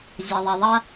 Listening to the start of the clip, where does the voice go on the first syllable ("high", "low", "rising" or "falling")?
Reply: low